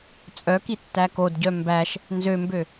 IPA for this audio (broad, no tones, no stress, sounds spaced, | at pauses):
t͡sʼ œ k i tː æ k o d ɟ œ m b æ ʃ | n z ø m b ø